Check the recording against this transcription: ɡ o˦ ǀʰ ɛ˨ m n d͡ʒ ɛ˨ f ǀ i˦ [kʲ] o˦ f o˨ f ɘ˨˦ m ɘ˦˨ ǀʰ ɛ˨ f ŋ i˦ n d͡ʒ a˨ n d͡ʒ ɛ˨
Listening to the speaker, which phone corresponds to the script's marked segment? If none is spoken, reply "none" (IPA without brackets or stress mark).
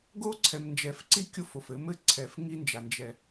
kʲ